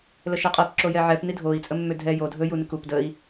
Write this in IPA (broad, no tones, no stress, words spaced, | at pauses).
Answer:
ləʃɛqʼɛp ǁojɛʕɛp nidʱoi̯ t͡sʼəmːødʱɛ jo dʱɵ junɪkup dəi̯